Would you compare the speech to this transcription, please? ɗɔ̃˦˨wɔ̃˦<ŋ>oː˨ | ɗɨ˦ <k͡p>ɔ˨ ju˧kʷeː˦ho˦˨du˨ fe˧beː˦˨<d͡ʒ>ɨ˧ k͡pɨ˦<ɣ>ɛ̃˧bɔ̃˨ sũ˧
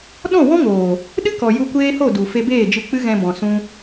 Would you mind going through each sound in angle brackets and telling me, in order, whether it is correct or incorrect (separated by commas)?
correct, incorrect, correct, correct